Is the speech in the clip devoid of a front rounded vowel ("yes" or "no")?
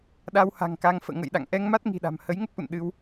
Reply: yes